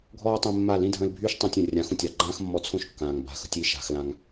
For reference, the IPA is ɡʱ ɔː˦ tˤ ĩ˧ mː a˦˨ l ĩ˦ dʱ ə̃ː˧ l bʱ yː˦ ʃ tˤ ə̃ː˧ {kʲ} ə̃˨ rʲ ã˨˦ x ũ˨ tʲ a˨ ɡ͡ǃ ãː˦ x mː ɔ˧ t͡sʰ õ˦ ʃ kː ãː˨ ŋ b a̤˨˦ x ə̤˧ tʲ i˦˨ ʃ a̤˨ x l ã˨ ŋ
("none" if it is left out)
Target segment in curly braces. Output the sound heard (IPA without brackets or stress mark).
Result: tʲ